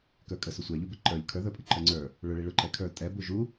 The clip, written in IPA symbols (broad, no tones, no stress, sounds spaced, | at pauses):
k ə˞ kʼ ə s ʊ sʷ ɛ ʎ u b ɪ ǃ ə˞ ʎ kʰ ə˞ ð ə˞ pʼ ɪ ǃ ə˞ ŋ͡ǀ ə˞ | ɭ ʊ ɭ i ɭ ʊ ǃ ɛ kʰ ə˞ tʼ ɛ b u ʒ u